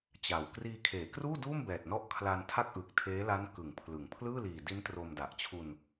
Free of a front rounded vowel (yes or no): yes